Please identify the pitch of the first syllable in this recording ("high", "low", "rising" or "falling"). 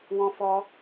high